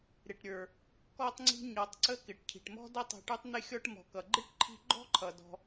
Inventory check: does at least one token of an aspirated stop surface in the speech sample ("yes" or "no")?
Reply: yes